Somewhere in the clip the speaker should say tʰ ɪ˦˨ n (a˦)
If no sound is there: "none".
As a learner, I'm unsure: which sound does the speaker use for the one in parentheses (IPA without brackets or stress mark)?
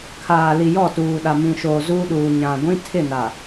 a˨